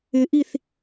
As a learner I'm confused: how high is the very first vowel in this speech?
high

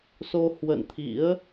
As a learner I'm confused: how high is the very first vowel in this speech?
mid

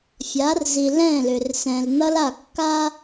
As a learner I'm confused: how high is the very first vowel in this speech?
low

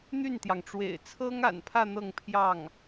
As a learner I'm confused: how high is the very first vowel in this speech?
high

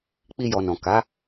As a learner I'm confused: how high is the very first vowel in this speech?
high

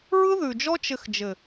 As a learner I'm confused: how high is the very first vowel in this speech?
high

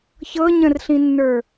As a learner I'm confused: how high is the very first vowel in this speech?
mid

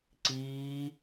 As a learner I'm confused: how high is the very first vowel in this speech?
high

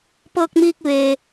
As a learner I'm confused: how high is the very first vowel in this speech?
mid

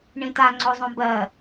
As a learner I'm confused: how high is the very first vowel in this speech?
high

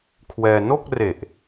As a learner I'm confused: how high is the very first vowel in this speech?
mid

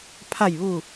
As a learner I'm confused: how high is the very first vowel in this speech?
low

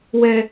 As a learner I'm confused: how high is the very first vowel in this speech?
mid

